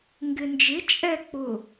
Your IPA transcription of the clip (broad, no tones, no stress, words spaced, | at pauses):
ŋɡɪnd͡ʒɪ t͡ʃʼɛ k͡pʊ